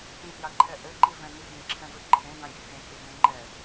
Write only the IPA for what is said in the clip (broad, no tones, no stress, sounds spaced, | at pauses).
t ĩ t j a ǃʰ ɛ ʔ ɘ ǃ i v ɛ̃ n i ɡʲ ẽ ǁʰ ɛ̃ v ɘ ǃʰ ẽ d ã ɡʲ ɘ h ẽ kʲ e b ẽ ŋ͡ǃ ɛ